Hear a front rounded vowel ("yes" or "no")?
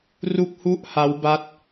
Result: no